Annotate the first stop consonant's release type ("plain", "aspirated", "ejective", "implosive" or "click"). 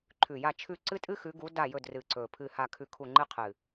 click